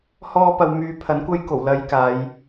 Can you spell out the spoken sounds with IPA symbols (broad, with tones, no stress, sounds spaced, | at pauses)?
h ɔː˥ p ɐ˧ w m yː˧ pʰ ɐ˨˥ n kʷ ɐ˥ j k o˨˩ w l ɐ˧ j k aː˨˧ j